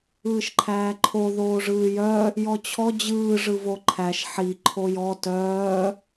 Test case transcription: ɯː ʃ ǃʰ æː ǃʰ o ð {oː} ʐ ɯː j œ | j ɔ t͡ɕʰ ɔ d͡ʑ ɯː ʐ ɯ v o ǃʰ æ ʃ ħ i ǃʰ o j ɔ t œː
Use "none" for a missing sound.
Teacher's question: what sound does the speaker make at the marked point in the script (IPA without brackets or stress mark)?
oː